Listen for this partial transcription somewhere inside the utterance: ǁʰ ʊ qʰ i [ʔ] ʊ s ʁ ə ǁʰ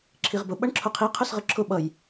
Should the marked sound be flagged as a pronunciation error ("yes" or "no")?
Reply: yes